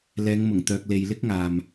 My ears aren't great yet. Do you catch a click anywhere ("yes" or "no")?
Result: no